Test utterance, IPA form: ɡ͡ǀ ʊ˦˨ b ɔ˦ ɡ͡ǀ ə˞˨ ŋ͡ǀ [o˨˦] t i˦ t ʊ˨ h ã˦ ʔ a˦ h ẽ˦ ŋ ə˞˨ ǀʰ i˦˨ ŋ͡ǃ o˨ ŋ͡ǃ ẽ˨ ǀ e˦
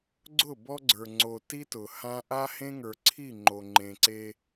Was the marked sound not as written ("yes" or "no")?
yes